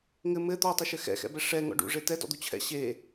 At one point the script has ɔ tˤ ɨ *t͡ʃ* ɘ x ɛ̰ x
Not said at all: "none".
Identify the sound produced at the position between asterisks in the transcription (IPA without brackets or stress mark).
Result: ʃ